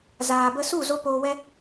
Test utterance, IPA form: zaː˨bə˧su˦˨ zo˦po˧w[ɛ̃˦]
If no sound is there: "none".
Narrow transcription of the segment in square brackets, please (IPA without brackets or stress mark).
ɛ˦